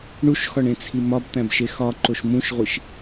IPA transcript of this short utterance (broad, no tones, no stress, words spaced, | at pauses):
ɳuʃxɒɳẽt͡sʰi mɒbt̪æ̃bʃe xɒǃoʃ mũʃʁʷiʃ